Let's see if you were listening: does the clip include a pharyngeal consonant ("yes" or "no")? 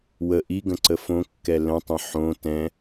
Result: yes